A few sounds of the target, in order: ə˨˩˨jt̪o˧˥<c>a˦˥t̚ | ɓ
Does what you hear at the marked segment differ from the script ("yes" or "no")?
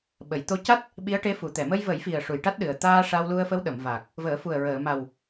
no